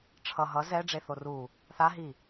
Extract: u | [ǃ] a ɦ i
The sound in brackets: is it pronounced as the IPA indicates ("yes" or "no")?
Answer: no